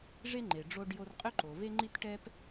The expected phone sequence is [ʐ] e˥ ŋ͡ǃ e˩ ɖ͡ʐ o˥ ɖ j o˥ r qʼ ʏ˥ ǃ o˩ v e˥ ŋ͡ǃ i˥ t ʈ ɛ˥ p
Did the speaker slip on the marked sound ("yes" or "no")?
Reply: no